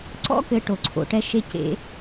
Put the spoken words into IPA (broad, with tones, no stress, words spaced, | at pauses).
ǀɔ̰˦kɘ˨ ʈo˩ǀʰo̰˩ʈɛ˨ ʃe˨cḛ˨